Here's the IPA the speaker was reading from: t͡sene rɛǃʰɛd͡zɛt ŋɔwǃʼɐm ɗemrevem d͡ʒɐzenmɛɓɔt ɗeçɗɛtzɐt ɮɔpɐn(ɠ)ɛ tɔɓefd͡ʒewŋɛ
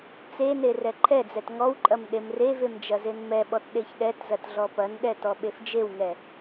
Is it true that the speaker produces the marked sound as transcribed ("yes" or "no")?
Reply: no